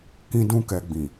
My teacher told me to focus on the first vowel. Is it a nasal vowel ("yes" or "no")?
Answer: yes